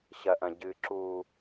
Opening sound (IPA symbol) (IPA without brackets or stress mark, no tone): ɕ